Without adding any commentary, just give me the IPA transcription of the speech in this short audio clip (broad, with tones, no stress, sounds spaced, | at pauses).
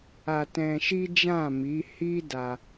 a˧ t ɛ̃˧ ʃ i˦ d͡ʒ ã˦˨ m i˨˦ h i˦ d a˧